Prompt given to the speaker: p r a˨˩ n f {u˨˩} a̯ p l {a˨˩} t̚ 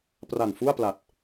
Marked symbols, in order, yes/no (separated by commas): no, yes